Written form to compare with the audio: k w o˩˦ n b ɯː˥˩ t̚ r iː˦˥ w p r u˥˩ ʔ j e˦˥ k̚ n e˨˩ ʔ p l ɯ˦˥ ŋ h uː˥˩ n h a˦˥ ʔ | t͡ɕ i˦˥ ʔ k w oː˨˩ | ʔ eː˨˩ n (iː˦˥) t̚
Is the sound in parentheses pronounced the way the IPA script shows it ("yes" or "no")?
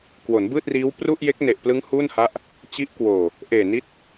no